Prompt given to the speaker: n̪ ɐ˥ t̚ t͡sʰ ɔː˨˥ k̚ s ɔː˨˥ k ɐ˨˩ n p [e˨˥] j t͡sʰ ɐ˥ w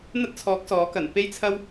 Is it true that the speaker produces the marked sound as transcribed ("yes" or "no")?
no